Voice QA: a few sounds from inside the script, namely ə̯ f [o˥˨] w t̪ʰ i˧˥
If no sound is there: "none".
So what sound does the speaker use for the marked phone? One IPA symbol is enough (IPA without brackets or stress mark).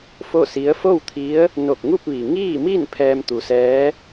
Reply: o˥˨